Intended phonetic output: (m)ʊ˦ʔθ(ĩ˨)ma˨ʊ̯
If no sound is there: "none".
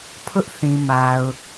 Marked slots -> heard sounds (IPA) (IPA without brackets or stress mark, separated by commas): pʰ, ĩ˨